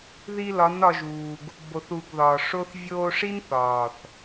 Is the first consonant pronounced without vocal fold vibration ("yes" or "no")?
no